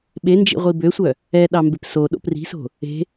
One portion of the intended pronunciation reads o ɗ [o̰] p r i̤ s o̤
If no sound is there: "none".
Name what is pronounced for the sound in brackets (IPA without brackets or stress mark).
o̰